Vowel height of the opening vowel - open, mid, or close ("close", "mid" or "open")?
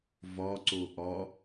open